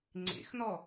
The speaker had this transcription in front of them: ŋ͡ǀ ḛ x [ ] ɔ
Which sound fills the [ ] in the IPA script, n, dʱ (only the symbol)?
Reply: n